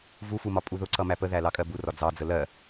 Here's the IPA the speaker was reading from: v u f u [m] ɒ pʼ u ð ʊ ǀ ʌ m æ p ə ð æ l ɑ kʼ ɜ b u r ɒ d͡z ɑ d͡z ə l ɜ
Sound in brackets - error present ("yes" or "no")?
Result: no